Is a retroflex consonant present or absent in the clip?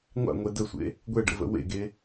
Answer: present